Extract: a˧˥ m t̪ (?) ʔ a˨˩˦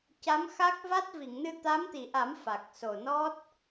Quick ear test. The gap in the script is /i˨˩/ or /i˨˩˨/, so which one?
i˨˩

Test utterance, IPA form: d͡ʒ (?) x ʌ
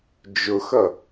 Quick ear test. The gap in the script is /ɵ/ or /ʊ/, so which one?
ʊ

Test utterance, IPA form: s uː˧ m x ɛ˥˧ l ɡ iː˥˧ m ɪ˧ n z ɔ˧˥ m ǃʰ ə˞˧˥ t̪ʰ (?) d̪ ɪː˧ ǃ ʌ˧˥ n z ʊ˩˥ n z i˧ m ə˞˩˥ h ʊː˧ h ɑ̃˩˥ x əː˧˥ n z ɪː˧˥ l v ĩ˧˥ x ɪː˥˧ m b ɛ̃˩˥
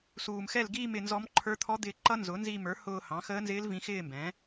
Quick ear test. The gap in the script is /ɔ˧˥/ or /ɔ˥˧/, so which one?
ɔ˧˥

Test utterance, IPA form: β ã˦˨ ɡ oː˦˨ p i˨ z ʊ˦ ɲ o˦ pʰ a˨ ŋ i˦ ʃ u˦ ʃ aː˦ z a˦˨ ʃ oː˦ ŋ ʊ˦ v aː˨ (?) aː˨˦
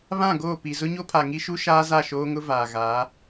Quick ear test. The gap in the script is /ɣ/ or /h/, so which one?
ɣ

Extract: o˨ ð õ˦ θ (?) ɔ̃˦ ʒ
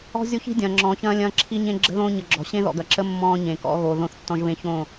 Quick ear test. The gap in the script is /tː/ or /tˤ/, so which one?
tː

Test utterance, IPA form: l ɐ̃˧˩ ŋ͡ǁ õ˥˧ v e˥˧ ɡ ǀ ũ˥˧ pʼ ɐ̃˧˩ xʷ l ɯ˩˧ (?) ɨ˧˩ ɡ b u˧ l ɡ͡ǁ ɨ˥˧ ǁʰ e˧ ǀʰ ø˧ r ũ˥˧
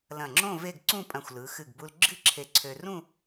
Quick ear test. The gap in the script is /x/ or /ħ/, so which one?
x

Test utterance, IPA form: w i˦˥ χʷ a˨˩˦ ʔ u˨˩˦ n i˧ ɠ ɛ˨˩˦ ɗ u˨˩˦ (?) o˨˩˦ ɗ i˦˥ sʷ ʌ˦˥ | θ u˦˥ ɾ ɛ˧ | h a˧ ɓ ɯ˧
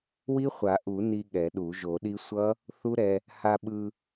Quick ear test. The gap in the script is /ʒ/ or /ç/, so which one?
ʒ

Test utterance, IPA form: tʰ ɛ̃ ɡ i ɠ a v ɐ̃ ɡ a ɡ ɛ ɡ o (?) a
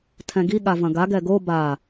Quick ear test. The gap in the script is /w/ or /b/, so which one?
b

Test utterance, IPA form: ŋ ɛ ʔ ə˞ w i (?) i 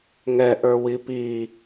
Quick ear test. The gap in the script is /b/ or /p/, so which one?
p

